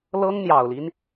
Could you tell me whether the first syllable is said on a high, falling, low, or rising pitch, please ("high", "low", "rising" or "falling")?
high